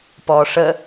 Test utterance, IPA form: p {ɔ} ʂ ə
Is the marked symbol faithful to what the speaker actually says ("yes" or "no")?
no